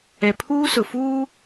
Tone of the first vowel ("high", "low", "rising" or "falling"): low